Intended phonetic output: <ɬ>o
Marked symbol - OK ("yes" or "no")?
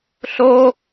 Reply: yes